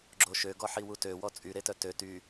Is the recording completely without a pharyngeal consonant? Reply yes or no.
no